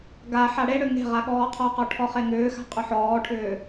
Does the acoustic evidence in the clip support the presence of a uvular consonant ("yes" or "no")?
yes